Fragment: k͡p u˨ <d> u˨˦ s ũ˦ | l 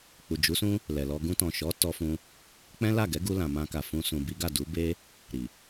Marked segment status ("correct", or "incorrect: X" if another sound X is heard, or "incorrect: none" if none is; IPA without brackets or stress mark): incorrect: d͡ʒ